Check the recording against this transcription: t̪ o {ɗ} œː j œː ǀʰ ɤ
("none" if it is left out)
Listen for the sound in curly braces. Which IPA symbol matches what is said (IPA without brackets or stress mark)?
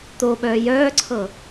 ɓ